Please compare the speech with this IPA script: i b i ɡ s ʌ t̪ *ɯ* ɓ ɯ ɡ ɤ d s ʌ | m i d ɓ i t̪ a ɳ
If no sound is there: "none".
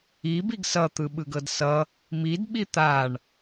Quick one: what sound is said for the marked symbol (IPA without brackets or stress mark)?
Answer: ɯ